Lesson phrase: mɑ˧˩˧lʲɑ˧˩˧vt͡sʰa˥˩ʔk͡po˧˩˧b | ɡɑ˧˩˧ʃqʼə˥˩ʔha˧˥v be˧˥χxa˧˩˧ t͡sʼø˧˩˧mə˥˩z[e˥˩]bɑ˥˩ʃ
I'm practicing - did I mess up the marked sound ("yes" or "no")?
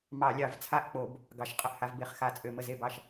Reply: no